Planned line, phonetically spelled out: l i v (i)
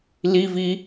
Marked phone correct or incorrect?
correct